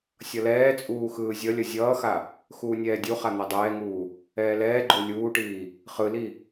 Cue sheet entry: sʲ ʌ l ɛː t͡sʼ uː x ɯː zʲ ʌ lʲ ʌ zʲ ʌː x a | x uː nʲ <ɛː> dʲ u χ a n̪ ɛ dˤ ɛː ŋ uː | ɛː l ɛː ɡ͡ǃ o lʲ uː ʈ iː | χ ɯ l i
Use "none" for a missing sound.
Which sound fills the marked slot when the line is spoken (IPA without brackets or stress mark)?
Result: ɛː